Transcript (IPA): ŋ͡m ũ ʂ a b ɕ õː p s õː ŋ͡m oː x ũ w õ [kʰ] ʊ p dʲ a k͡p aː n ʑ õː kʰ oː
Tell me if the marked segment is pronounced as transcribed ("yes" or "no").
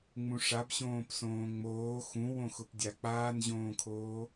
no